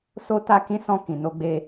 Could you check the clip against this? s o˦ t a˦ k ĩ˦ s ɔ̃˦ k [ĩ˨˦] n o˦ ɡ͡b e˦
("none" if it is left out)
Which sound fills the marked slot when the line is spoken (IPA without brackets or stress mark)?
ĩ˧